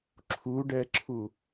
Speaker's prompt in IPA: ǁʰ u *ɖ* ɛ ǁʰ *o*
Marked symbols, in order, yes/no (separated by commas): yes, no